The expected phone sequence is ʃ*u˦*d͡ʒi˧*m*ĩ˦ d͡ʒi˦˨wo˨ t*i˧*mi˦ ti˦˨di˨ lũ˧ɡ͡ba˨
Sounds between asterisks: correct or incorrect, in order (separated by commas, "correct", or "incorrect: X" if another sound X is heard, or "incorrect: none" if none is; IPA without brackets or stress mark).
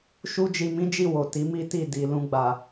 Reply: correct, correct, incorrect: i˨˦